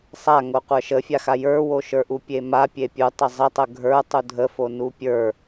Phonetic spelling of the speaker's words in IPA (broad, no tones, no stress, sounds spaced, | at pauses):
sˤ a ŋ o qʷ ə˞ ʃ ə fʲ a x a j ə˞ w o ʃ ə˞ ʔ u pʲ e m a pʲ e pʲ u tˤ ə zˤ ə tˤ ə ɡʱ ə˞ tˤ u dʱ ə f o n u pʲ ə˞